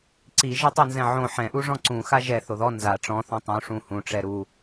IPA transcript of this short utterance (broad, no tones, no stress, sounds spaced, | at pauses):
ǀ i ʒ ɐ tˤ o n z ɛ̃ ʕ õ ħ ɛ̃ ʔ u ʐ ɔ̃ ǀ ũ x a ʒ ɛ θ o ð ɔ n z a ʈ͡ʂ ɔ̃ θ õ tˤ ũ ʂ ũ h ũ ʈ͡ʂ ɛ ɾ u